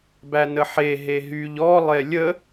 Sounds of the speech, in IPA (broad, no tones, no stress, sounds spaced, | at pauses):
b æ n ə ħ e ɦ e ɦ y ʎ ɔ lˠ e lʲ ə